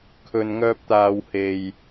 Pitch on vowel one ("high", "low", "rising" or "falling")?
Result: low